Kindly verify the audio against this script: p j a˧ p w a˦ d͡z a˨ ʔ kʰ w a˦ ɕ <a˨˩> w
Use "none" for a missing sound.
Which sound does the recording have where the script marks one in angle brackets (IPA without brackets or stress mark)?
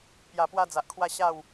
a˥˧